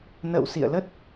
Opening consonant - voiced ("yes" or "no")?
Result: yes